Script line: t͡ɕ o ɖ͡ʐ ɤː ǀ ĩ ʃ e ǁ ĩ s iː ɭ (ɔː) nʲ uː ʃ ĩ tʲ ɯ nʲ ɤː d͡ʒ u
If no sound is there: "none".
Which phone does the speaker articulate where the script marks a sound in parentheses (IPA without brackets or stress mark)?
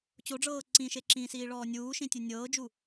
ɔː